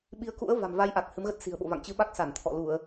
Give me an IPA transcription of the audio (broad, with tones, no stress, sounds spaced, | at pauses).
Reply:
ɓ i˨˦ ə̯ k ṵ˧˥ ə̯ v a̤˨˩ m v a˧ j ʔ a˨˩ k̚ h ɨ˨˦ m ɣ ə˦˥ t̚ s i̤˨˩ ə̯ ɓ o̰˧˨ v a̰˧˨ ŋ t͡ɕ ɨ˨˦ ɓ a˦˥ k̚ s a˧˩ n t̪ʰ ɔ̰˧˨ l u˧˩˨ ə̯